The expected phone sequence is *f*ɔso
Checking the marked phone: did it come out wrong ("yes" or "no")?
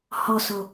yes